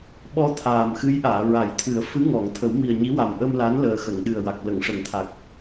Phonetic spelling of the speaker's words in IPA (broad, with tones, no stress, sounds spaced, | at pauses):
ɓ ɔ˧ t̪ʰ aː˨˩ m x ɨ˧˥ j ʔ aː˨˩˨ ɹ a˨˩˦ j t̪ʰ ɨ˨˩˦ ə̯ f ɨ˧˥ ŋ ɔ˨˩˨ ŋ t̪ʰ ə˨˩˦ w m i˨˩ ə̯ ɲ i˧˥ w a˨˩ m ʔ ə˧ m l a˧˥ n l əː˨˩ x ə˨˩˨ ŋ ɗ ɨ˨˩ ə̯ w a˨˩ k̚ l ə˨˩˨ ŋ ʂ ə˨˩˦ ŋ t̪ʰ a˨˩ k̚